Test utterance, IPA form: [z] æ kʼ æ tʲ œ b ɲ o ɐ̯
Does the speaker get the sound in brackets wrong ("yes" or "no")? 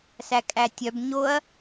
yes